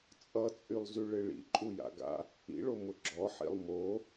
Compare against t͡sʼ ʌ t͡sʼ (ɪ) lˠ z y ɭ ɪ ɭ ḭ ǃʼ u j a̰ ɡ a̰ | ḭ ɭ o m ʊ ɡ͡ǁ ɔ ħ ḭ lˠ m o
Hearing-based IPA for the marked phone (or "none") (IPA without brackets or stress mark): y